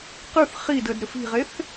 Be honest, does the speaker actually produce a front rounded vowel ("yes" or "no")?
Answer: yes